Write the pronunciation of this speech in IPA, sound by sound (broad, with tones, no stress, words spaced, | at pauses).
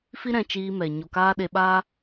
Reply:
fi˦ɾɛ̃˧t͡ʃiː˧mɛ˨ ɲo˨kaː˧ ɗe˧ɓaː˦